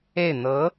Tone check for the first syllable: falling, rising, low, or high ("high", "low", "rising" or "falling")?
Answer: falling